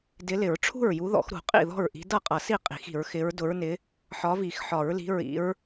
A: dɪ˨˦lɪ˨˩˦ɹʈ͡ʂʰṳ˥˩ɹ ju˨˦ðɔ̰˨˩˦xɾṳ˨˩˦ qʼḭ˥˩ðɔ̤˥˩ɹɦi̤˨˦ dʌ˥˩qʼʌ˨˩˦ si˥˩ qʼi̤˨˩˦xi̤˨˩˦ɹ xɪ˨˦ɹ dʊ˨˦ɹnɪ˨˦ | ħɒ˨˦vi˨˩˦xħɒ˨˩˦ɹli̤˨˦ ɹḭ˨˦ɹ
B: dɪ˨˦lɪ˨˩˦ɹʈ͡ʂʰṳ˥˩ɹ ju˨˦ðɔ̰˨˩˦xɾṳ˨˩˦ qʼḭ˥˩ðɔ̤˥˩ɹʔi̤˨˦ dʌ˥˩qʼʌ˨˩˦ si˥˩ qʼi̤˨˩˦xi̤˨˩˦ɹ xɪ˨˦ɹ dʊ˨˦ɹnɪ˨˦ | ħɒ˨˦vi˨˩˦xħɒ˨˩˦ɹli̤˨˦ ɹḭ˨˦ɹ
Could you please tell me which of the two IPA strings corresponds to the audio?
B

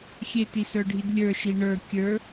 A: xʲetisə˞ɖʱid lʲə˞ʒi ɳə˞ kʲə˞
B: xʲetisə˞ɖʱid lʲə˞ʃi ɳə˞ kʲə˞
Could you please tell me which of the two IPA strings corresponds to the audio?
B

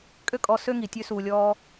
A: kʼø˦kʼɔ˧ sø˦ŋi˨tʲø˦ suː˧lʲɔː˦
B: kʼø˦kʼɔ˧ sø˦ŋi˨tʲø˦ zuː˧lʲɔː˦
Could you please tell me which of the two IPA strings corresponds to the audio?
A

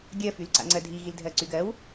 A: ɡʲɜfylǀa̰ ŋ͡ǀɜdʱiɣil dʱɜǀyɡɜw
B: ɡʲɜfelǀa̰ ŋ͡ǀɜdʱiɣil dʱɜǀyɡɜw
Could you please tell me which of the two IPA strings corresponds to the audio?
A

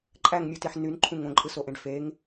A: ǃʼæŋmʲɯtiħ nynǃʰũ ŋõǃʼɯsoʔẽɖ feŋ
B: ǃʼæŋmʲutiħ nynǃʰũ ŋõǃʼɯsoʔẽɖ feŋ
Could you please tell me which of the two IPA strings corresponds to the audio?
B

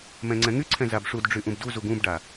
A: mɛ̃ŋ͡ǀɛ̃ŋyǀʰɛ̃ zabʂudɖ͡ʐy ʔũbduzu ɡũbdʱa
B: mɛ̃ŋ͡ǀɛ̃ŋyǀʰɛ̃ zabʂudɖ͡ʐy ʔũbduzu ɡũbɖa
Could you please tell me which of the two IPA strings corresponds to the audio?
B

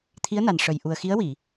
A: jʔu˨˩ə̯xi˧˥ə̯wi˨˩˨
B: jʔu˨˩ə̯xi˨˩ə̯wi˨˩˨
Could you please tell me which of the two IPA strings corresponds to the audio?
A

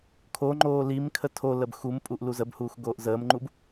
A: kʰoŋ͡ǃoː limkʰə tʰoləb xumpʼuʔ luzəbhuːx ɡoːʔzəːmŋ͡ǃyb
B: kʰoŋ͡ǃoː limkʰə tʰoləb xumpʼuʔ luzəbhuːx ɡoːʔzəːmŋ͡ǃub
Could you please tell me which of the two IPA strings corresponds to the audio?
B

